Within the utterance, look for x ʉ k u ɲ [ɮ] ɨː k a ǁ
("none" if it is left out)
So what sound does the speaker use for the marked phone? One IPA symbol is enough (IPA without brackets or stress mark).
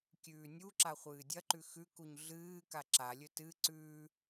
ɮ